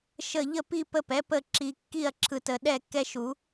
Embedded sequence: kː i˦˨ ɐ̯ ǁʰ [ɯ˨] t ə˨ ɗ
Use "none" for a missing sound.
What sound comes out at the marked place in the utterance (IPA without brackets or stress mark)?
ɯ˨